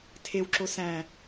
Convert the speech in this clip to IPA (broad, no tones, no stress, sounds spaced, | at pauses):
tʰ e w ǁ o s æ̃